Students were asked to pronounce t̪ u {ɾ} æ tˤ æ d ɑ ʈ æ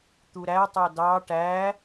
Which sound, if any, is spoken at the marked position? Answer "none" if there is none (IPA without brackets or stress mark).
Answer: ɾ